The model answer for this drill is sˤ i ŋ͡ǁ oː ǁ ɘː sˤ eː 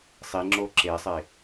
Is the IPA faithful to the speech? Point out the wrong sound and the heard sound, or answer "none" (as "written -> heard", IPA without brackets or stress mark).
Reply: ɘː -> eː